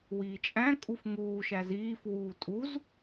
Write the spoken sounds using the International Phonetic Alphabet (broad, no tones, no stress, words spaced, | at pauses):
wiːt͡ʃʼæ̃kʼuf ŋuː ʃæziːf wuːtʼuz